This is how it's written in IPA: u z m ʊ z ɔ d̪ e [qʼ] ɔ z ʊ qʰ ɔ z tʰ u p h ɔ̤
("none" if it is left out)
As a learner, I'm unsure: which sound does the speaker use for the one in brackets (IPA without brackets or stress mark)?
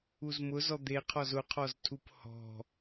qʰ